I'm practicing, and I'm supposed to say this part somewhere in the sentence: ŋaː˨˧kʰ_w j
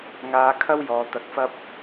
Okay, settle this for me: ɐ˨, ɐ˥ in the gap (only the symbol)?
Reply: ɐ˥